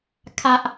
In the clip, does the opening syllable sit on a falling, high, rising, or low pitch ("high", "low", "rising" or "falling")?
high